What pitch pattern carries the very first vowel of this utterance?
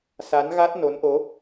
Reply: rising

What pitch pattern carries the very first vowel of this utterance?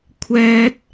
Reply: high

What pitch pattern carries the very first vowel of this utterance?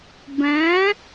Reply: rising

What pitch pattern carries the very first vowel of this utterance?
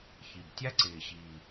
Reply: low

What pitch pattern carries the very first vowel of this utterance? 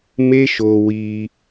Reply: high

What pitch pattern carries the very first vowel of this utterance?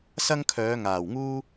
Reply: high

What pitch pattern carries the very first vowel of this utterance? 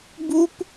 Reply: high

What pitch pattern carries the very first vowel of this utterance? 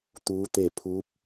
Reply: rising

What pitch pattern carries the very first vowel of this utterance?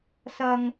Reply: low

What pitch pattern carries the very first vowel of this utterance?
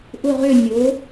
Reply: falling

